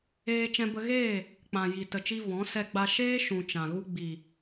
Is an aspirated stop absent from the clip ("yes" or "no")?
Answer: yes